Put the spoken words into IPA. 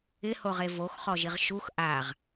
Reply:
ɪhoʁe voxχɔʒiʁ ʃux ʔaʁ

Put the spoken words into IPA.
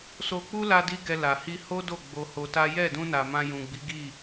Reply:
so˧k͡pu˦ la˦di˦ɡɛ˧ la˨hi˧ho˦do˦˨ ɡ͡bo˧ho˧ta˦ jɛ˦˨dũ˧na˨ mã˧jũ˨ɡ͡bi˨˦ ɡi˦˨

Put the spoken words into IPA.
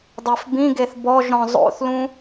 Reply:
dˤefbĩɡeθ bɔʒ ɾɔ̃zˤo̰θlũ

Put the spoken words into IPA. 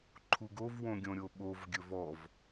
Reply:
ǃʰuɡov wõɡʲõɾʲoɓov ɡʲɵvɔv

